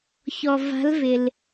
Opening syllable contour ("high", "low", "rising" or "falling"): low